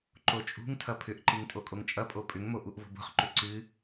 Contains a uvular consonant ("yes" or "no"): yes